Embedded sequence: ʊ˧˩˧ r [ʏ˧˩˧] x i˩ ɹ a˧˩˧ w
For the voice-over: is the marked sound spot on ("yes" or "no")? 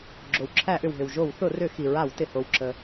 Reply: yes